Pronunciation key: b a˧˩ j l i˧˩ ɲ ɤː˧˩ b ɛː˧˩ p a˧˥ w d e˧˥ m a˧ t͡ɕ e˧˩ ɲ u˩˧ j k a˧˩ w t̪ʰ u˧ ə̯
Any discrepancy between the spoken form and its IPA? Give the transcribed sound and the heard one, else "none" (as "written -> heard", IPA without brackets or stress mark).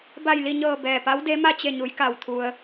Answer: none